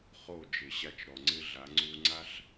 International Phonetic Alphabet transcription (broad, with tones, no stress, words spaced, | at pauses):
χo˦˨d͡ʒɪ˨ɕa˧t͡ʃ ɾɔ˨ ŋ͡ǀɪ˦ɮa˨˦ ŋ͡ǀu˧ ŋ͡ǀa˦ɬ